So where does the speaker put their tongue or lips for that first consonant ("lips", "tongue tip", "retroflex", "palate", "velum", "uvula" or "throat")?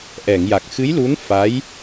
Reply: throat